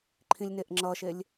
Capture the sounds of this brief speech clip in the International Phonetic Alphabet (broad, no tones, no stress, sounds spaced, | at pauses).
ǃʰ ĩ lʲ n e ʔ ŋ͡ǁ ʌ ʃ e lʲ